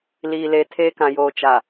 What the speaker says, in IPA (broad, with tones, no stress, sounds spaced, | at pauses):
l iː˨ l e˨ tʰ eː˦ k ã˨ j oː˨ t͡ʃ a˨